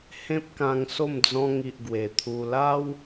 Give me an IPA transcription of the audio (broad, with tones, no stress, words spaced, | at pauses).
hẽ˦p̚kã˧ŋso˥˧m d͡zɔ̃˧ŋi˨ʔ ɡwe˨˩t̪ʰu˧ la˦w